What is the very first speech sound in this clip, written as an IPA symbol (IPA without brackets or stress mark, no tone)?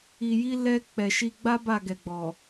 i